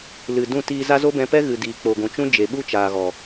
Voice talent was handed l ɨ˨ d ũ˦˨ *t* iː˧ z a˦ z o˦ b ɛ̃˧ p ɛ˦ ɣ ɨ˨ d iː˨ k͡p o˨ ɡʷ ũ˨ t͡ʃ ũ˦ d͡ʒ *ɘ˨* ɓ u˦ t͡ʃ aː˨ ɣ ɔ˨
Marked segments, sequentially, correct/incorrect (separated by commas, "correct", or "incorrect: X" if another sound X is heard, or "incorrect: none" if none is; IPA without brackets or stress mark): correct, incorrect: e˨